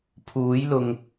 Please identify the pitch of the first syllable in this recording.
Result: rising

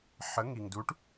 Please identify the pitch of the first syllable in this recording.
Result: rising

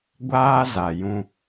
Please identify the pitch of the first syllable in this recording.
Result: high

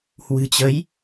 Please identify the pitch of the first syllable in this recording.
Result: low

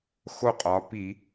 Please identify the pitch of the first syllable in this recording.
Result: falling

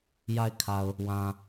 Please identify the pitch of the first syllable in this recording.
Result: low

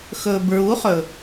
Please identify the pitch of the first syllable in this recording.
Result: low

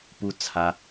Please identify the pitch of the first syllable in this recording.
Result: high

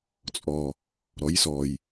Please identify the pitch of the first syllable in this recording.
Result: low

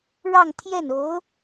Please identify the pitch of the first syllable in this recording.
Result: falling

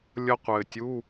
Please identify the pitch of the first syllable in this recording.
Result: high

